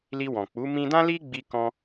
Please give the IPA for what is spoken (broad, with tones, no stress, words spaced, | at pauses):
li˧wɔ̃˨k͡pu˨˦ mĩ˧dã˦ li˦ɡ͡bi˧ kɔ̃˧